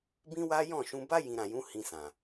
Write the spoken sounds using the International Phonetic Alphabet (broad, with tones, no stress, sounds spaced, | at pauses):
b ĩ˦ w a˦ j ɔ̃˦˨ ʃ ũ˧ b a˦ j ĩ˧ ɾ ã˨ j ũ˨˦ h ĩ˧ s ã˨